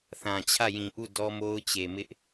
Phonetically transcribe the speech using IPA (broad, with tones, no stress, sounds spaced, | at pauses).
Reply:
θ ã˨ t͡ɕʰ ä˦˨ j ĩ˨ ʔ u˦˨ d ɔ˦ m o˦ ʊ̯ t͡ɕ e˨ m ɪ˦ ʔ